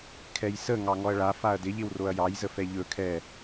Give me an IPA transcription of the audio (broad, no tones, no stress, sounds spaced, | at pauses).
kʰ ɛ j s ə ŋ ɑ ŋ ɔ ɐ̯ ɭ a f a ɐ̯ d ɪ ʎ ɪ w r o ɐ̯ j ɑ j z ə f ɛ ʎ ɵ kʰ ɛ